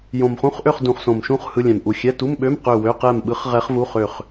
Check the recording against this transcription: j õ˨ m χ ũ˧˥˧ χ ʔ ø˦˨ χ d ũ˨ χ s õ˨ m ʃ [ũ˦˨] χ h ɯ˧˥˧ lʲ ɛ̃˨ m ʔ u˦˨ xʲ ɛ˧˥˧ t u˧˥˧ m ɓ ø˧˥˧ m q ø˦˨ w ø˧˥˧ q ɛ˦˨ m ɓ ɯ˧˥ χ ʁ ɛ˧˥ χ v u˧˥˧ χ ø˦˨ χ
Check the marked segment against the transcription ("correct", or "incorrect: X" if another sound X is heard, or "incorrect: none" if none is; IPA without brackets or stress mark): correct